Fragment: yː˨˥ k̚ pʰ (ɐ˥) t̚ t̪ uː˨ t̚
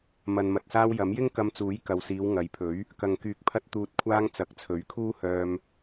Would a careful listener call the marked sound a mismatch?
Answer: yes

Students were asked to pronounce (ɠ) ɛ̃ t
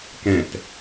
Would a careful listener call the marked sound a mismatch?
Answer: yes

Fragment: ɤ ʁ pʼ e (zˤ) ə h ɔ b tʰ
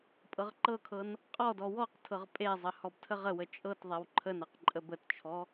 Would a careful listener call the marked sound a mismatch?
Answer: no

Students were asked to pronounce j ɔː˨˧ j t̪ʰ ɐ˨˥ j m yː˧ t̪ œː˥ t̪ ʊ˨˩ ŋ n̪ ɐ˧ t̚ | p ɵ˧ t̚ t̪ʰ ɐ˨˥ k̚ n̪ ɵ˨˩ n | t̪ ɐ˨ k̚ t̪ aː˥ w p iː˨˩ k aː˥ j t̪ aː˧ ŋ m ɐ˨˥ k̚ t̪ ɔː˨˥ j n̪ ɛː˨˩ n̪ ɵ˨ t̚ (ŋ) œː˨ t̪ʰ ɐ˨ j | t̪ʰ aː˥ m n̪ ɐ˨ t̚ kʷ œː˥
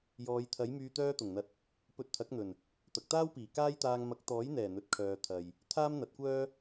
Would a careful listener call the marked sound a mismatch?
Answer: yes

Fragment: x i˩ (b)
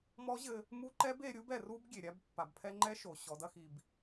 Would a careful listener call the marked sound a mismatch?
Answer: no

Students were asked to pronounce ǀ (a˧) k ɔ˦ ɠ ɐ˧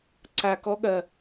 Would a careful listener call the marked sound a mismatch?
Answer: no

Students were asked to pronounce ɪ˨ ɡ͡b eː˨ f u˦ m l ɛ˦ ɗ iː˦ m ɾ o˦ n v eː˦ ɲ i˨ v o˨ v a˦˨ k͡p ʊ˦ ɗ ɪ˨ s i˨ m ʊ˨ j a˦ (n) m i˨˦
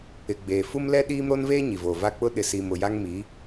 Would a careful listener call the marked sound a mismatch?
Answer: yes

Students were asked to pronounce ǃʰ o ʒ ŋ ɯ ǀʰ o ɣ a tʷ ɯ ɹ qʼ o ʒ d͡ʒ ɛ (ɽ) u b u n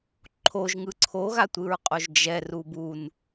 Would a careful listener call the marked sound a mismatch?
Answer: yes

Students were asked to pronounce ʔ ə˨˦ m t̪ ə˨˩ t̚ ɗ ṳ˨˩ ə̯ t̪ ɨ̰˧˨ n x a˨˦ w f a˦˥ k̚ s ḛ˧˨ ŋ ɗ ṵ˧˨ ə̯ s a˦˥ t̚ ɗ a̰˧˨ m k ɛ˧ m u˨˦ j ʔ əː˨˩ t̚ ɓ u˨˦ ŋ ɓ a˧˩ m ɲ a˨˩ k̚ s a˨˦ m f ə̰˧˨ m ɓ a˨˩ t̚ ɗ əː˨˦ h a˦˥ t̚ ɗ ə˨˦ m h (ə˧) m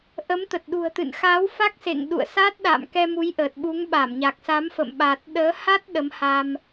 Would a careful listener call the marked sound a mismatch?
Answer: yes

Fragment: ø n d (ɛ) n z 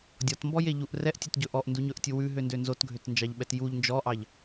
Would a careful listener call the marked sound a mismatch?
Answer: yes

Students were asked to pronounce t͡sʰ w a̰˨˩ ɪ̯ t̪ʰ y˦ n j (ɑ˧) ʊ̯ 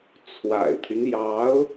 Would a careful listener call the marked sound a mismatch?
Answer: yes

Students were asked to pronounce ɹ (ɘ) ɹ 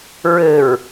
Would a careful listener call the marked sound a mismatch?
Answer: no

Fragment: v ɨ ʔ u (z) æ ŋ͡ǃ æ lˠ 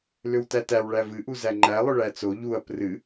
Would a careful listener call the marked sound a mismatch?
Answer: no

